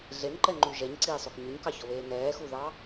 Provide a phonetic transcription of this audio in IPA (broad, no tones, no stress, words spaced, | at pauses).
ɮenǃɛŋ͡ǃʉ ʒɛɲǀiːsˤok ɲʉɲkɑçɔβeː nɛːxuðɑ